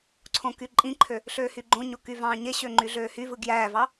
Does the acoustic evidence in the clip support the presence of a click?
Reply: yes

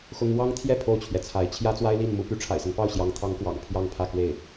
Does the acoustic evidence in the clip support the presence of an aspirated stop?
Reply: yes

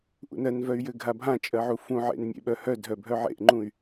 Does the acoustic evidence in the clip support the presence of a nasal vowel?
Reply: yes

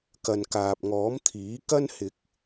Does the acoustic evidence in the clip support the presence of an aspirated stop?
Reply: yes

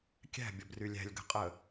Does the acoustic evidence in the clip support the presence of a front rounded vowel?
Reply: yes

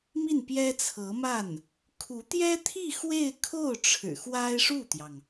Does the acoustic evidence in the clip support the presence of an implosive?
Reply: no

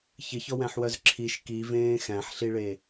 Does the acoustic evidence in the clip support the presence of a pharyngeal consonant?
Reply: yes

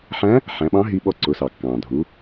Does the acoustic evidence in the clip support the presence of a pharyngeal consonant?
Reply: yes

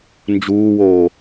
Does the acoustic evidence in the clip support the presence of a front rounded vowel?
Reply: no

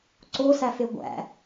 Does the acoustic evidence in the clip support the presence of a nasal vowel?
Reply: no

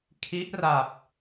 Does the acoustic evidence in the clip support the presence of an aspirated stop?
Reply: yes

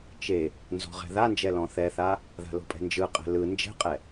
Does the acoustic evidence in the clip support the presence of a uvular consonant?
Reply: yes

